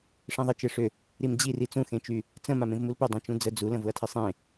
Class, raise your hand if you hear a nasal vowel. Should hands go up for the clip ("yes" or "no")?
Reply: yes